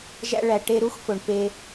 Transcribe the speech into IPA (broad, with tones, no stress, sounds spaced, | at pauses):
ʒ æ̰˦ ɭ æ˨ ʈ e˦ ɾ u˥ x f o˨ ɳ p e˦